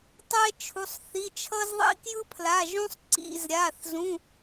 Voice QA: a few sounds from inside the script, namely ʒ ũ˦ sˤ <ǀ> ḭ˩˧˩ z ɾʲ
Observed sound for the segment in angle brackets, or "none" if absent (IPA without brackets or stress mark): ǀ